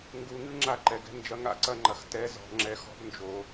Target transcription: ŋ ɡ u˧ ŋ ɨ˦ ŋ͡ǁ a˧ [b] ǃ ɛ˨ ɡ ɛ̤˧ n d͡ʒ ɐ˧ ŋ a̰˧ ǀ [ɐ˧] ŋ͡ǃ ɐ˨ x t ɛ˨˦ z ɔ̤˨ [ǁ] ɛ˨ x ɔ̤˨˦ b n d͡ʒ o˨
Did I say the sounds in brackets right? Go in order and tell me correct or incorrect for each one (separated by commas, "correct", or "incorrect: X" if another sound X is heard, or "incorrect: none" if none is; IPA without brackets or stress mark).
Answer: incorrect: none, correct, incorrect: ŋ͡ǁ